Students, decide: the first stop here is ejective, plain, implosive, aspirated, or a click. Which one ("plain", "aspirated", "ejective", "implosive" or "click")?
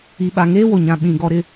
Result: implosive